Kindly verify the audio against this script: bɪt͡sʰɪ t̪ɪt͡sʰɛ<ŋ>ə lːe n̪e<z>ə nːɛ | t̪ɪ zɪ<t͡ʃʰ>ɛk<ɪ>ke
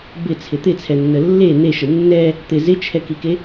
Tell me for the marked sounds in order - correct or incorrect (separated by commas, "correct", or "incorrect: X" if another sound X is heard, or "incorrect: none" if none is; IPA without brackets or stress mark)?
incorrect: nː, incorrect: ʃ, correct, incorrect: i